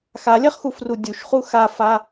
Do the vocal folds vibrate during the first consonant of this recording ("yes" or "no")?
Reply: no